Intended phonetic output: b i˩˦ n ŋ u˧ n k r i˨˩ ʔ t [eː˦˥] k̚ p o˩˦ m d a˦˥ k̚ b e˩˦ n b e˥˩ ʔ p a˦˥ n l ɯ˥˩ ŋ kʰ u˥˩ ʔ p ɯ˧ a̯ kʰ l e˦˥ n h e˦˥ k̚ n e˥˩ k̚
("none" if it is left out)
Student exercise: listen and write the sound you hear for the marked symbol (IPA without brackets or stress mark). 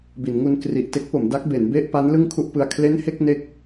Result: e˦˥